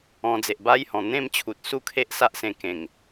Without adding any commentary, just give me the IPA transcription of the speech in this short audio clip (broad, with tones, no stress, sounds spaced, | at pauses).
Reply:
ɔ̃˧ d͡z e˨ ʔ b a˦ j h ɔ̃˨˩ n̪ ẽ˥˧ m t͡ɕʰ u˨ t̚ s u˥˧ kʰ e˦ ʔ s a˦ ʔ s ẽ˧ k ẽ˨˩ ŋ